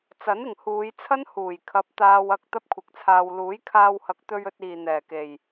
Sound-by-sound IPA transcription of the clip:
t͡sɐ˨˥nɪ˨˩ŋhuː˨˧jt͡sʰɐ˥n huː˨˩jkʰɐ˨˥p̚ t̪aː˧wɐ˧k̚ t̪ɐ˥p̚kʷʰɪ˨˥k̚t͡sʰaː˧w luː˨˥jkʰaː˧whɐ˨˥k̚ t̪ɵ˧ɥ ɵ˧t̚iː˨ n̪ɛː˨˩ke˨˩j

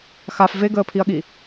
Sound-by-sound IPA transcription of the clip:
xaf veɡəːpʰiɐ̯ɠi

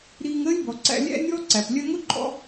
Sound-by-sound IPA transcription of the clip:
ɾiː˧ŋəː˦lʲbɔ˨ǀæ̰˧ lʲæ̰˦nʲɔː˦ǀæ˨p lʲɜ˧ŋʊ˦ǃʼɔ̰˧

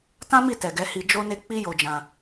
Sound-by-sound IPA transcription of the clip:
tã˦mi˦˨ tɛ˨ɡɛ˨˦ hi˧d͡ʒo˦ne˦ k͡pi˦jo˧d͡ʒã˧

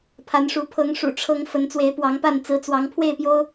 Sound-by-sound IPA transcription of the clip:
pʰa˨˦nʂu˨˦ pʰɤ˨˦ŋʂṵ˨˩ʈ͡ʂʰɤ˨˦ŋ fə˨˦nt͡swe˨˦ɪ̯pwɑ˨˦ŋpa˥˨n t͡sɹ̩˨˦t͡swɑ˨˦ŋpʰwe˥˨ɪ̯pjo˦ʊ̯

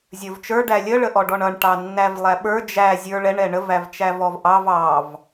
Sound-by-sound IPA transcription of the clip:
zʲə˞vt͡ʃə˞ ɖælʲə ɭəʔɔɖɔɳʌɳ ʈɑnːævlˠæɓə˞ d͡ʒæ zʲə˞ɭɛɳ ɛɳəv ævt͡ʃævɔvʔɑv ɑv

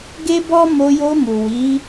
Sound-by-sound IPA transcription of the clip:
ɡe˦bɔ˦ mo˧jo˧mu˨ wi˨˦

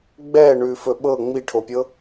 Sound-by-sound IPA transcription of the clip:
ɡ͡bɛ ɳʉfɵɓɤ ŋ͡miʈʰopʲɤ

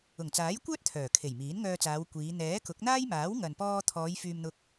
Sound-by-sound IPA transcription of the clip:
ʊ˨˩ŋt͡saː˨˥jkʷœː˥t̚ t̪ʰœː˨˩kʰe˨˩j miː˨˥nŋœː˧t͡saː˨˧wkʷiː˨˧ n̪ɛː˨˥kʊ˨˥k̚n̪aː˥j maː˨˥wŋɐ˨npɔː˧t̪ʰɔː˨˧j fyː˧mn̪ʊ˧k̚

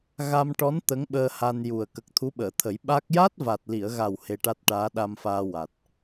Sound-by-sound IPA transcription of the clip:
ɣa˧mʈɔ˧˥n t̪ə˧˥ŋɓəː˧ ha˧nju˨˩ə̯ kə˨˩k̚t̪ʰu˧˥ɓəː˨˩˨t̪ʰə˨˩˦j ɓa˦˥k̚ ja˦˥t̚va˨˩t̚li˨˩˨ə̯ɣa˨˩w he˧ʈa˦˥t̚ ʈaː˧˥ɗa˧mfaː˧ wa˨˩t̚

